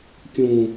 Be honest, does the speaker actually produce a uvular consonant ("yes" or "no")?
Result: no